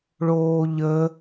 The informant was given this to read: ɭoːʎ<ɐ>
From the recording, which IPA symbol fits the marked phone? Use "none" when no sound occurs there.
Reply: ə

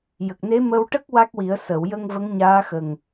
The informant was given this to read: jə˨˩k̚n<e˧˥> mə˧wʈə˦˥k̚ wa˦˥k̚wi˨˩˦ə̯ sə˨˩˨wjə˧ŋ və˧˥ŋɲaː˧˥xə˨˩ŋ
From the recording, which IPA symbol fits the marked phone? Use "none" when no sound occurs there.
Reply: e˧˥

